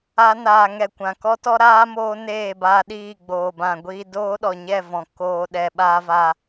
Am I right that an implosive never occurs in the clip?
no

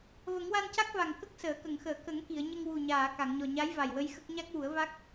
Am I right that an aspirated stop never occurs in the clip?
yes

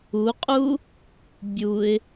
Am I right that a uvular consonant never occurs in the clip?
no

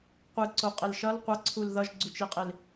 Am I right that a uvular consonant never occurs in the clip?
no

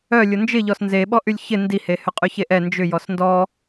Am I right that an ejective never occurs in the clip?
no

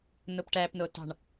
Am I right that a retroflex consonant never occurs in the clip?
no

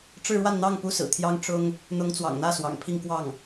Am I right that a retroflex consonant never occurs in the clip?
no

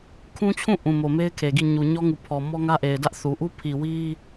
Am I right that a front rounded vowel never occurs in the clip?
yes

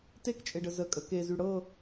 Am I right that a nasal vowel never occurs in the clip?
yes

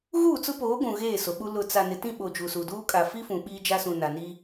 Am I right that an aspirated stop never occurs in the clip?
yes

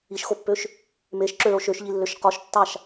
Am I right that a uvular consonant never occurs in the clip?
no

